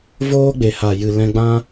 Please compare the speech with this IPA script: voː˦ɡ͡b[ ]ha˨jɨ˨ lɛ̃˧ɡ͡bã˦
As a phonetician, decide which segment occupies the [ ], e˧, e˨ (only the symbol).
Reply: e˨